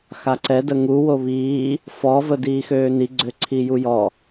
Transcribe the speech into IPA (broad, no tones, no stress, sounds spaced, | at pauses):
x a ǀ ɛ d ə ŋ u w o β iː | f ɔ v ə d iː x øː n i ɡ͡ǀ ø ǀʰ i j u j ɔ